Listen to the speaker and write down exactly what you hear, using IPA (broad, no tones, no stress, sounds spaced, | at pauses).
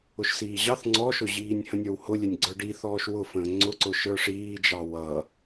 ʊ ʃ s iː ʑ ɑ θ ŋ͡ǀ ɔ ʃ ʊ ʑ iː nʲ h ə̃ nʲ ə˞ w h ʊ lʲ ɛ nʲ ɡ͡ǀ ə˞ ɖ i θ ɔː ʃ w ʊ f ə̃ː ŋ͡ǀ ʊ ǀ ʊ ʃ ə˞ ʂ iː d͡ʒ ɑ w ʌ